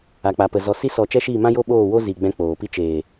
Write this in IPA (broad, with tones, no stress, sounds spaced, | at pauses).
a˨ k͡p a˨ p ə˨ z ɔ˨ s i˧ s ɔ˨ t͡ʃ ɛ˦ ʃ iː˦˨ m ã˦ j o˦ ɓ oː˦˨ w o˦ z i˨ ɡ͡b ɛ̃˧ k͡p oː˨ p i˦ t͡ʃ eː˨